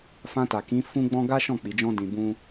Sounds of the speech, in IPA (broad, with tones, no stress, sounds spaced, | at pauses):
f ã˧ t a˨ k ĩ˨˦ f ũ˦ ɡ͡b ɔ̃˦ ɡ a˦ ʃ ɔ̃˦˨ k͡p i˨˦ d͡ʒ ɔ̃˦ d ĩ˧ b ũ˦